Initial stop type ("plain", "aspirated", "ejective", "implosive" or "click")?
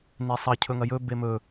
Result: aspirated